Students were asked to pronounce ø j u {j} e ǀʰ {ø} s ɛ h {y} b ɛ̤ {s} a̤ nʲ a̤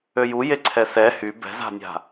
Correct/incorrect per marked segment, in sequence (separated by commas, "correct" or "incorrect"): correct, incorrect, correct, incorrect